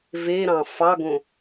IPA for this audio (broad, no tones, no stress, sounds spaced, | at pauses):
v e ɾ ɑ̃ f ɑ ɡ õ